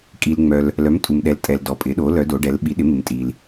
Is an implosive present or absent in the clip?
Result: present